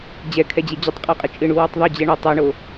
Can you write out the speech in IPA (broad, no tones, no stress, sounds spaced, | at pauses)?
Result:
d͡ʑ ɛ kʰ ɛ d͡ʑ e d͡ʑ ʊ tˤ qʼ u qʼ ɪ t͡ʃʼ ɪ ɳ u w ɪ tˤ ðˤ ʊ d͡ʑ ɛ ɳ ʊ tˤ ɛ ɳ o